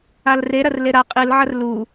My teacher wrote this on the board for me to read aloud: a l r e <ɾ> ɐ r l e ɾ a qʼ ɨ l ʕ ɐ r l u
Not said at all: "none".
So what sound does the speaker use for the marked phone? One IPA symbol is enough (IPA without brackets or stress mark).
ɾ